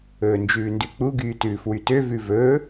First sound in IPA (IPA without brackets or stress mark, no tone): ɵː